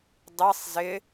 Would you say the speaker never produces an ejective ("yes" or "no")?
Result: yes